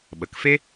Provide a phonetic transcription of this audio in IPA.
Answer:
ɓə˨kfe˦

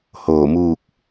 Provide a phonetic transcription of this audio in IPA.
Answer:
hoː˧˩muː˥˨k̚

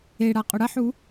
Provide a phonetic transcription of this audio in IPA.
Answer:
eɽa qʼɵɽɐħu

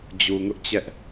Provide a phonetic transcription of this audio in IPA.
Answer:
d͡ʑu˨ŋʊ˦ʔt͡ɕɛ˦ʔ

